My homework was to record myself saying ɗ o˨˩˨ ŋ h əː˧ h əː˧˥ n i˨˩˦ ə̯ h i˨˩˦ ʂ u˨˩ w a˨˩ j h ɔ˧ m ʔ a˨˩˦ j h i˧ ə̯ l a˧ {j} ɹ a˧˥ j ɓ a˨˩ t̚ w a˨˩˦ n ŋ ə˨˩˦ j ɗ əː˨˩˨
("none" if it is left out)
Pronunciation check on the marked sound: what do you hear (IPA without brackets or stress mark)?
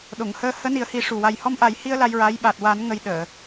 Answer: j